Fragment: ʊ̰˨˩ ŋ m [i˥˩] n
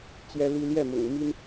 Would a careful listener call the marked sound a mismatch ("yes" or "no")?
yes